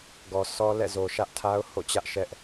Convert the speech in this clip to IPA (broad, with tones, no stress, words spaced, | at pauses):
ɡɔ˨sʰɔ˦lɛ̰˦˨ zo˨ʃä˦ʔtʰa˦ʊ̯ho̰˦˨ t͡ɕä˦ʔʃɛ˦ʔ